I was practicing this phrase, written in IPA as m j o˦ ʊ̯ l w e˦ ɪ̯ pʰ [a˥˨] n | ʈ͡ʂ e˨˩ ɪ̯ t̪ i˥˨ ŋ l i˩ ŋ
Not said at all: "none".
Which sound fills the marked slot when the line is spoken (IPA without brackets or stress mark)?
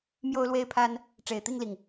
a˦